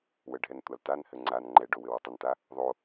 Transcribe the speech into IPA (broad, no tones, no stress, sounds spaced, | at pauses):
w ə ɖʱ ɛ n tʷ a l t a n h ɘ ŋ͡ǀ a n ŋ͡ǃ ɛ ɖ o w ɘ w o tˤ ə n t a | ðˤ o